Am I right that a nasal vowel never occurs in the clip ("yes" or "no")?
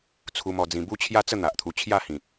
no